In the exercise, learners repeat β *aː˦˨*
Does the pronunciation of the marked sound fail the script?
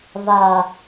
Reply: yes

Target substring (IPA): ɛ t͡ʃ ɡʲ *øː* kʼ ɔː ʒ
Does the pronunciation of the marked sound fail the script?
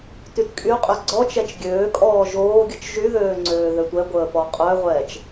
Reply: no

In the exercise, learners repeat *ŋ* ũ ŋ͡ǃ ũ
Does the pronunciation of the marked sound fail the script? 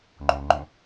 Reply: yes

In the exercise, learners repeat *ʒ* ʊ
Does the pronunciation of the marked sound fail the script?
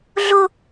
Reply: yes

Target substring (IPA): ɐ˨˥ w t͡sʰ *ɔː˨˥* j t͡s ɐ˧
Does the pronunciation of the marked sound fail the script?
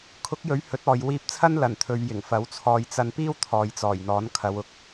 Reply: yes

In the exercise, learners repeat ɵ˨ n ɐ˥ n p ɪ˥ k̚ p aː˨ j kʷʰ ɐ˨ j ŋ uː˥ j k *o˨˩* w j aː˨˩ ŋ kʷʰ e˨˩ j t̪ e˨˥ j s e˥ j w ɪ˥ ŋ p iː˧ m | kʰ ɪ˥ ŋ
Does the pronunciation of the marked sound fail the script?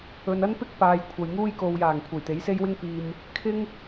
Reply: yes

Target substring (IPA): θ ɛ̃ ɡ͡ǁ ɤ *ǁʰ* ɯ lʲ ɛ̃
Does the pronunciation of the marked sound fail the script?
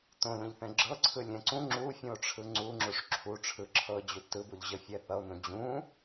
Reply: yes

